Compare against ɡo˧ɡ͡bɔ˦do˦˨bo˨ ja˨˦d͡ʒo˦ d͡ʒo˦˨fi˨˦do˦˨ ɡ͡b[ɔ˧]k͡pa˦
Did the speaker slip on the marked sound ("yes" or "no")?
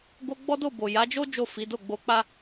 yes